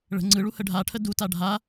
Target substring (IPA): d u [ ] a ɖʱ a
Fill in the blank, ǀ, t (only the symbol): t